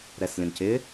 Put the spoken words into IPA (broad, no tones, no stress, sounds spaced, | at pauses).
ɾ ɛ s lʲ ə̃ n c ɪ